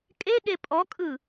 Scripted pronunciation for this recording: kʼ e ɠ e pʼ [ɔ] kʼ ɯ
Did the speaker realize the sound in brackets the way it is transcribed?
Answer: yes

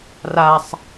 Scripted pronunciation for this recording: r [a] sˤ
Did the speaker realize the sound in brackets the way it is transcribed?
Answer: yes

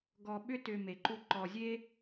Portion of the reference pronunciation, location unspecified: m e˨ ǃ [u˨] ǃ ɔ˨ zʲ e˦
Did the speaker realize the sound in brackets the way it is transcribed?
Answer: no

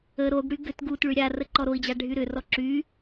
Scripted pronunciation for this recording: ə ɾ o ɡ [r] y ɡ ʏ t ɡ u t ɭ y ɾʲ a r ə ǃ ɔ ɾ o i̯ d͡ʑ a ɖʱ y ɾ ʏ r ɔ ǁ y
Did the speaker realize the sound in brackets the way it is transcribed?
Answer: no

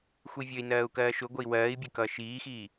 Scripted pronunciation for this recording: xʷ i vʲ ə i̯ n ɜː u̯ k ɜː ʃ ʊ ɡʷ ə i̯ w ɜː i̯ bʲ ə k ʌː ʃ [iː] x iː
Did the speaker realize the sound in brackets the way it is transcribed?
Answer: yes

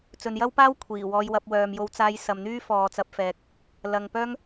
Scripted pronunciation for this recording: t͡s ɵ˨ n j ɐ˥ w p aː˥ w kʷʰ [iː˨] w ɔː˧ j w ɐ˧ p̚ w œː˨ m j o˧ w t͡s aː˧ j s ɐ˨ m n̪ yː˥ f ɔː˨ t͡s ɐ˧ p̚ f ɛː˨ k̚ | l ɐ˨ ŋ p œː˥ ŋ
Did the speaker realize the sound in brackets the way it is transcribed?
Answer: no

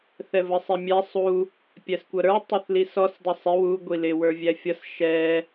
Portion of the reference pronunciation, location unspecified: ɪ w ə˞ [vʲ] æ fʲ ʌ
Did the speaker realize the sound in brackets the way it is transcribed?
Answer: yes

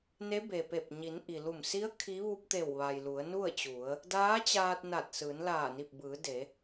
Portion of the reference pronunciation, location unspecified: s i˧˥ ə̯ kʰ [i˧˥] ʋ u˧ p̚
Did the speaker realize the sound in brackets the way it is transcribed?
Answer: yes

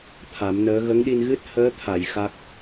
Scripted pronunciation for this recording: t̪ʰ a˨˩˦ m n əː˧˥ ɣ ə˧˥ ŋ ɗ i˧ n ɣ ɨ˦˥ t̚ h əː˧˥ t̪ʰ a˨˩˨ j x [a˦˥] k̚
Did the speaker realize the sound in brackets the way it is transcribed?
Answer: yes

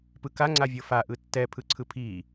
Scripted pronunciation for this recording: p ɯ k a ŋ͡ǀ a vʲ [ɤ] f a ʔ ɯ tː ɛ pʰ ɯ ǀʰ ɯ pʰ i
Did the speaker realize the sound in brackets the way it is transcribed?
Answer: yes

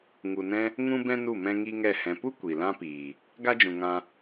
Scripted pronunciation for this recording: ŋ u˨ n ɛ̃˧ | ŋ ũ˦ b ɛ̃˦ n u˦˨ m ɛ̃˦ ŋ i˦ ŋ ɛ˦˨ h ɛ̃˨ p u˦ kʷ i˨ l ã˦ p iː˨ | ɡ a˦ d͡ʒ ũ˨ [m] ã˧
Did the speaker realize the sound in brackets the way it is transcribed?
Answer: no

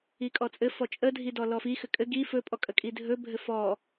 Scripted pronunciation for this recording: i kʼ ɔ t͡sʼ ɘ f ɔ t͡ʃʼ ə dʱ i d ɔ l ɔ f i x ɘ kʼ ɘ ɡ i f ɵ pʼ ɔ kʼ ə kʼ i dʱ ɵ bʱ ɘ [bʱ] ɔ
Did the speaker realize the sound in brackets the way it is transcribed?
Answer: no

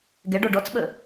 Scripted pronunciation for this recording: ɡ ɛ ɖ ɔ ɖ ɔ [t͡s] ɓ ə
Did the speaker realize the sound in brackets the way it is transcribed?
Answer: yes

